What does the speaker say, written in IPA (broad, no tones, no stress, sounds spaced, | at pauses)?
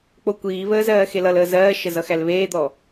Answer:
k͡p o kʷ iː β əː z ɜː x e l ʌ l əː z ɜː ʃ ə z ʌ x æ l β eː d̪ ɔ